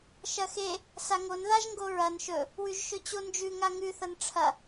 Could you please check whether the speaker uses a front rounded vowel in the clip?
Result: no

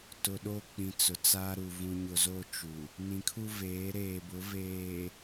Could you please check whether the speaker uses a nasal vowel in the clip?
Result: yes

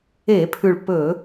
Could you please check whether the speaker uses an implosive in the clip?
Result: no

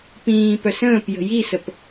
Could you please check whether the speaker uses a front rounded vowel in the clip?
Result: yes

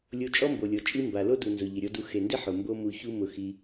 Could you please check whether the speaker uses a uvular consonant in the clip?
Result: no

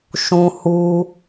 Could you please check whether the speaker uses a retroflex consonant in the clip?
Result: no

